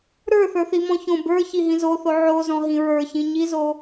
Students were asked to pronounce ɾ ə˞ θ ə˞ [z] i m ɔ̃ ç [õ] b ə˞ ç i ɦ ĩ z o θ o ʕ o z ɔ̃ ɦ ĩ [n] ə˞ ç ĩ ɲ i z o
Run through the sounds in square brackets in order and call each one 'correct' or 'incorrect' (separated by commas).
incorrect, correct, incorrect